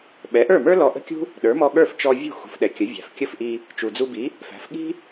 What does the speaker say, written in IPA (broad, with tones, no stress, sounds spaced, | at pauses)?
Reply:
ɓ ɛ˩˥ ʔ ə˞˥˩ m ə˞˥ l ɔ˧ ʔ ə̤˥ kʲ ṳ˥ | ɗ ə˞˩˥ m ɔ˧ ɠ ə˞˥˩ f t͡ʃ ɔ˧ vʲ ṳ˥˩ x ṳ˩˥ f ɗ ɛ˩ kʲ ə˩˥ vʲ æ̤˩ f kʲ ə˥˩ f ʔ i˧ | t͡ʃ u˩ d͡z u˧ b i˩˥ | f æ̤˩˥ f ɠ i̤˥